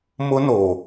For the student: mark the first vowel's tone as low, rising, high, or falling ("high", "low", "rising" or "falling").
high